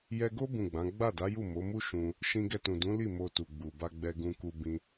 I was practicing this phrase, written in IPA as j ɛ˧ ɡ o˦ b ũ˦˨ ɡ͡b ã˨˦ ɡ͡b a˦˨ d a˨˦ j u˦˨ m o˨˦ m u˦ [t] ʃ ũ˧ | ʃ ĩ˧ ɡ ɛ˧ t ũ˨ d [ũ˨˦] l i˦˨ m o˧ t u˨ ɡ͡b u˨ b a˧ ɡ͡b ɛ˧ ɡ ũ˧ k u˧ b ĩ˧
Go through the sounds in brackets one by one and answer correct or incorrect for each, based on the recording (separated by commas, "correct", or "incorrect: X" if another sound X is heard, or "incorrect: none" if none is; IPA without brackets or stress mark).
incorrect: none, correct